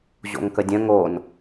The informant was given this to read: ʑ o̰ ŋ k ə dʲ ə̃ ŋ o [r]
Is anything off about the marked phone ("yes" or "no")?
yes